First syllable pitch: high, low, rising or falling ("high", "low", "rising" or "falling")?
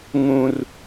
high